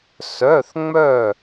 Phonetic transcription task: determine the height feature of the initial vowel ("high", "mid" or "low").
mid